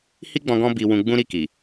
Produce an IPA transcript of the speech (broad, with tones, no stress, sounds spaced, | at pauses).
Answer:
h i˦ ɡ͡b ɔ̃˧ ɡ ɔ̃˦ b i˧ w ũ˧ ɡ͡b ũ˦ ɾ i˦˨ k i˨